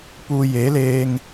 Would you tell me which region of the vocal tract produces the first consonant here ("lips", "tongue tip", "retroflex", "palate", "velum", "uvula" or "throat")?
lips